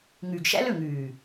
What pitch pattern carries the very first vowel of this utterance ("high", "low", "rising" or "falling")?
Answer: low